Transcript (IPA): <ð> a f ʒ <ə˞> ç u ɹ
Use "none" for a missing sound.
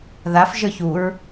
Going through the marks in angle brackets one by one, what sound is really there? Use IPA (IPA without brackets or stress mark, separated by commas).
ð, ə˞